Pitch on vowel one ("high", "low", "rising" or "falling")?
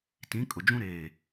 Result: rising